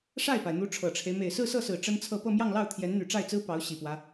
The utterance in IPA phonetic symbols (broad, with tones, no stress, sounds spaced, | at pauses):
ʂ a˥˩ ɪ̯ p a˩ ɪ̯ n̪ u˧˥ ʈ͡ʂʰ ɤ˨˩ ʈ͡ʂʰ e˦ ɪ̯ m e˨˩ ɪ̯ s ɹ̩˥˧ s ɤ˥˩ s ɹ̩˨˩ ʈ͡ʂ ə˥ n t͡sʰ ɤ˥˧ p ɤ˥˧ m j ɑ˥˧ ŋ l ɑ˥˩ ʊ̯ t̪ʰ j ɛ˧˥ n n̪ y˨˩ ʈ͡ʂ a˥˩ ɪ̯ t͡s ɹ̩˥ p ɑ˧˥ ʊ̯ ɕ i˨˩ p w ä˦